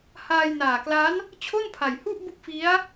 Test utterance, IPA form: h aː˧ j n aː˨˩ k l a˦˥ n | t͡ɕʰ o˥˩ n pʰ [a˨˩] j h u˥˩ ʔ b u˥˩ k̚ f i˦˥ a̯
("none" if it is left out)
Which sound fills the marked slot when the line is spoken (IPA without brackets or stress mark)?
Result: a˨˩